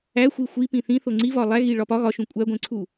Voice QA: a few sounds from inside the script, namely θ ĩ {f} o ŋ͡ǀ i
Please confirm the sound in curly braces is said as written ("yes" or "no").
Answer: no